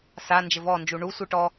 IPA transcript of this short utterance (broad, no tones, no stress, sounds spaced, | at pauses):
s a n d͡ʒ ɘ v ɔ n d͡ʒ u ɳ u sʷ ɨ ʈ ɔ